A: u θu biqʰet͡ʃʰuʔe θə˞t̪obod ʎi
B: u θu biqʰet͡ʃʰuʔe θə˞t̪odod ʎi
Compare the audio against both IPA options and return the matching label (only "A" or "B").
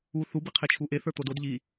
B